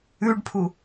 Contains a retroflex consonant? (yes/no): yes